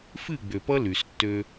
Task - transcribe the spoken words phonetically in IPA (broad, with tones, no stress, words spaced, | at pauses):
fɨ˦˨ ɡ͡bø˨pʌ˦ ly˨stːø˦